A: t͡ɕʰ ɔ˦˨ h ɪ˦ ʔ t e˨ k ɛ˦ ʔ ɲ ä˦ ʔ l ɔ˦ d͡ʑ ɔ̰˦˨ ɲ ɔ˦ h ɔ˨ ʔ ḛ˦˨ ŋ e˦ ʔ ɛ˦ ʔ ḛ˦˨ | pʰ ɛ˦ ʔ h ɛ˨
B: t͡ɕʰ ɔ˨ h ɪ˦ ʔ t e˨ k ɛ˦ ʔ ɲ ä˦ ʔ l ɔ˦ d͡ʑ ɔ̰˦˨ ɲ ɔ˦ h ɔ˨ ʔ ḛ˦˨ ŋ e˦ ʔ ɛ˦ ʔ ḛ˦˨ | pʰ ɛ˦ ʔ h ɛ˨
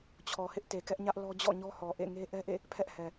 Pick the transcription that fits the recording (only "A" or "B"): B